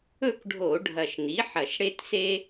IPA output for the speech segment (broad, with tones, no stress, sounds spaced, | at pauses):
ɵ˥˨ k ɖʱ o˧˩˧ ɖʱ ɐ˨˩ ʃ n i˩˥ ħ ɐ˨˩ ʃ ɽ e˦ t s e˦